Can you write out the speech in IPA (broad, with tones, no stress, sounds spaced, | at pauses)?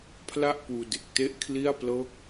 pʰ l a˥˩ ʔ p uː˧ d e˨˩ k̚ t e˥˩ ʔ kʰ l i˥˩ a̯ p l ɤː˥˩ k̚